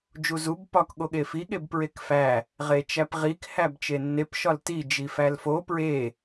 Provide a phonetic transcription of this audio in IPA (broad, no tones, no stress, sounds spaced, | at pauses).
d͡ʒ u z u b p ɒ k ɠ o ɠ e f i ɠ e b p ɹ e k f æ | ʁ e t͡ʃ æ p ʁ i k h æ b t͡ʃ e nː e p ʃ ɒ l t i d͡ʒ i f æ l f o p ɹ e